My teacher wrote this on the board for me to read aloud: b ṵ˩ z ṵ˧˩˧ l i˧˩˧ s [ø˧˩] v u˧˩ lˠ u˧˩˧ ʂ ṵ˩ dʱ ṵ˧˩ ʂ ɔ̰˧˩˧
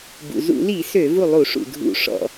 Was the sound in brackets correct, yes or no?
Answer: no